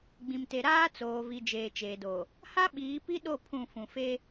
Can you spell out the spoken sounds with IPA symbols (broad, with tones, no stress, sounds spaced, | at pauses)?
ɡ͡b ĩ˨ m t e˨ ɾ aː˦ t͡s oː˨ v i˨ d͡ʒ eː˨ t͡ʃ eː˨ d oː˨ | h a˦ ɓ iː˨˦ p i˦ ɗ o˦˨ pʰ ũ˦˨ f ũ˨ f eː˦